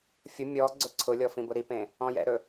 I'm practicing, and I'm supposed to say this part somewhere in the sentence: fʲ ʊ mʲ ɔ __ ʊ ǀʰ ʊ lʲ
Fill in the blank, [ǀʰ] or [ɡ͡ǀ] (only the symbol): ɡ͡ǀ